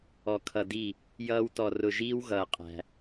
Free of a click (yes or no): yes